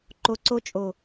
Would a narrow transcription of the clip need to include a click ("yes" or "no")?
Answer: yes